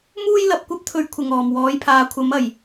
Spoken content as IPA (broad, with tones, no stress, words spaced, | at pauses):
muː˥jlɐ˧p̚ kʷɐ˥p̚t̪ʰɵ˧ɥ kʷʰɪ˨ŋɔː˨˩m wɔː˨˥jpʰaː˨˥kʷʰɐ˨˥m ɐ˨˩j